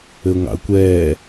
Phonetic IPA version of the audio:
ɘ ʊ̯ ŋ ɑ̰ ə̯ kʷ ɛː

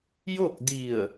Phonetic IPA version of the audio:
j o˥˨ k̚ d i˧˩ ə̯

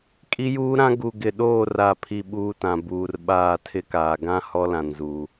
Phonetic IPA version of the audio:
kʼ i˦ j uː˦ ɾ ã˦ ɡ u˨ ɡ ɪ˨ ɗ oː˦˨ r a˦˨ pʰ i˦ ɓ uː˦ t ã˨ b uː˨ r ɓ aː˦˨ tʰ ɪ˦ k aː˨ ɡ ã˦ h ɔ˦ l ã˨ n z u˨

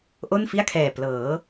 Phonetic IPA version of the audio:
ʔ o˥˩ n f i˥˩ a̯ kʰ ɛː˨˩ p l ɤː˩˦

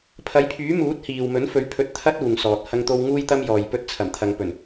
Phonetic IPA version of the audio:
pʰ ɐ˨˥ j pʰ yː˨˥ m uː˨˥ t̚ h iː˨ w m ɵ˨˥ n f ɵ˨˥ ɥ pʰ ɵ˨˥ t̚ t̪ʰ ɐ˥ t̚ uː˨ ŋ s ɔː˨ t̚ h ɐ˧ ŋ t̪ o˧ w ŋ uː˧ j t̪ ɐ˧ m j ɔː˨ j p ɵ˧ t̚ t͡sʰ ɐ˨˩ m t̪ʰ ɐ˨ ŋ p ɵ˨˩ n

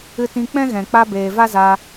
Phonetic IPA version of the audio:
ɨ˧ t ĩ˧ k͡p ɛ̃˦ ɣ ɛ̃˨ k͡p a˧ b eː˨ v a˦ z a˧

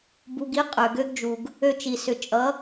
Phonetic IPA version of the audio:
b u˩ ɡ i˧˥ qʼ ø˩ ɡ ø˧ ɡ d͡ʒ u˩ ɡ | ø˧ t͡ʃ i˩ s ʏ˩ t͡ʃʼ ʌ˩˧

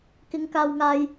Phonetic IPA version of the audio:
k ɪ˨˧ ŋ k aː˨ w ŋ aː˨ j

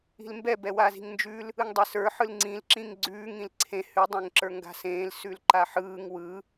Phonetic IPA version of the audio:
i̤ l m b ɛ b ɛ w a z i̤ ŋ n d͡ʒ ʉ l | ɯ ŋ dˤ ɛ s ə˞ ħ ɯ l ŋ͡ǀ ĩ l ǁ ĩ ŋ ɡ͡ǀ ʉː ŋ ĩ l ǀʰ ẽ h ʉ dˤ ẽ ŋ ǁ ə˞ ŋ ɡ a̤ s ẽː l s ʉ l ǃ a ħ ɯː ŋ w ɯ

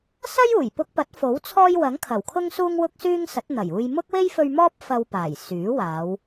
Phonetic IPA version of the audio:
s ɐ˥ j uː˨˩ j p ʊ˧ k̚ p ɐ˨˥ t̚ f o˨˥ w t͡sʰ ɔː˥ j w ɐ˨˥ ŋ kʰ ɐ˨˩ w kʰ ʊ˥ ŋ s uː˥ ŋ w ʊ˥ k̚ s yː˥ ŋ s ɐ˨˥ t̚ n̪ ɐ˨˩ j uː˧ j m ʊ˥ k̚ w e˥ j f ɵ˧ ɥ m ɔː˥ p̚ f ɐ˧ w p aː˨˩ j s yː˨˥ w aː˨˧ w

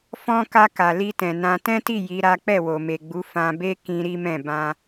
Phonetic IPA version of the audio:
f ɔ̃˧ k a˧ k a˨ l i˧ t ɛ̃˨ n ã˧ t ɛ̃˦ t i˦˨ j i˨˦ ɾ a˦ k͡p ɛ˦˨ w o˨ m e˨ ɡ͡b u˨˦ f ã˧ b e˦ k ĩ˧ ɾ i˦ m ɛ̃˦˨ b ã˧

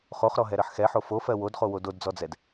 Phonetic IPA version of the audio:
χ o χ ɾ ɔ ɦ ɛ ɾ ɜ ħ x ɛ ħ o f o f ɜ w o d χ o w o d o d d͡z ɔ d͡z ɛ d

